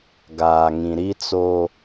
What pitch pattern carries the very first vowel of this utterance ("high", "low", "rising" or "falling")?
low